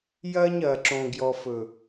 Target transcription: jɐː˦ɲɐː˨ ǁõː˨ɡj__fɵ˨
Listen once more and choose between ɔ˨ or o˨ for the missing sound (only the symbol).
ɔ˨